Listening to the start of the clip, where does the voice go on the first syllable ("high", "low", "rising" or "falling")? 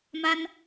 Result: high